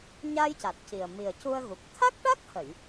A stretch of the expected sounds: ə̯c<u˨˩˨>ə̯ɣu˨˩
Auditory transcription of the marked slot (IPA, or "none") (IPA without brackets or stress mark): u˧